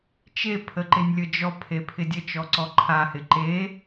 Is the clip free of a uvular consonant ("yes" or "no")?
yes